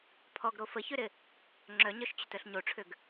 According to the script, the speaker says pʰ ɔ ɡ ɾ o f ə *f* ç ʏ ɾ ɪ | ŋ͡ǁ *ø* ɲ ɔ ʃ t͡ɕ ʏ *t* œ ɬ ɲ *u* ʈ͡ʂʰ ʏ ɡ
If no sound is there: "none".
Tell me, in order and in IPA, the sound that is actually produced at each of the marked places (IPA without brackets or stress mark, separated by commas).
none, œ, t, o